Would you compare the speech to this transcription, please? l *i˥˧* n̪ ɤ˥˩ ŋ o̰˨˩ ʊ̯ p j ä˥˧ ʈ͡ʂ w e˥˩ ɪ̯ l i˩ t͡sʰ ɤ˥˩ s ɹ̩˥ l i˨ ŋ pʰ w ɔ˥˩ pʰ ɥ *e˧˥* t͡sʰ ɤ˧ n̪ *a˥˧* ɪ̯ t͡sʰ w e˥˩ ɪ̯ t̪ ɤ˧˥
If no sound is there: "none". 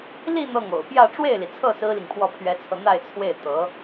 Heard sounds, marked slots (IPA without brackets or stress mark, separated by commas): i˥˧, ɛ˧˥, a˥˧